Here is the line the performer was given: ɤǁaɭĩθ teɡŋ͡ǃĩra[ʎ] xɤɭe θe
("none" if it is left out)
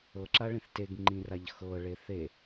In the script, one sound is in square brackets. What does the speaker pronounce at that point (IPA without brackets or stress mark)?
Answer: ʎ